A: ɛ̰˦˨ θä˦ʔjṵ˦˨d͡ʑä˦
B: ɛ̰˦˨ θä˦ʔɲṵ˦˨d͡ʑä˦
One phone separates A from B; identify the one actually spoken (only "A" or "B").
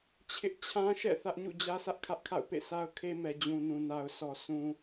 B